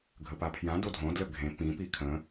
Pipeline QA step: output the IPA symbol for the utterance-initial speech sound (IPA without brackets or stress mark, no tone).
ɡʱ